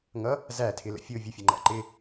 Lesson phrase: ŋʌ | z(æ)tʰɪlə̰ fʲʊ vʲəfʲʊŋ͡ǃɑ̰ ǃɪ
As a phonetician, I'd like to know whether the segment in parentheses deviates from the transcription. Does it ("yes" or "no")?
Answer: no